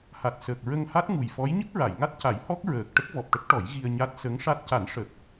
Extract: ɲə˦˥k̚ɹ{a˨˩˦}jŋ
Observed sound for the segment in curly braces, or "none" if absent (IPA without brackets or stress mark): a˨˩˨